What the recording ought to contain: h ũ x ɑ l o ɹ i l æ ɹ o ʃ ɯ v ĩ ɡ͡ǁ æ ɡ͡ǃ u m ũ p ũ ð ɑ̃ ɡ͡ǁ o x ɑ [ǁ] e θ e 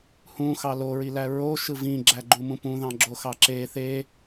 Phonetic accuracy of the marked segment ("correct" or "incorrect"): correct